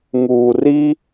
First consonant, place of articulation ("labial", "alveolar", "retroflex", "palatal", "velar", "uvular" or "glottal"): velar